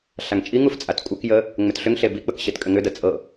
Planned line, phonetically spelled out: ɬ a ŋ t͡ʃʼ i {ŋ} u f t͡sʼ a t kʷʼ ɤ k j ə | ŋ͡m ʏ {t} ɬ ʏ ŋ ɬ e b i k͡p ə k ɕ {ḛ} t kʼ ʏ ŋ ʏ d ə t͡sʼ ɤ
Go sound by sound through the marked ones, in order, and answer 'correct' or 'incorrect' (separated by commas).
correct, correct, incorrect